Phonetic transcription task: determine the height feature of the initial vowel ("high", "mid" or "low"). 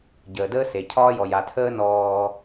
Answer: mid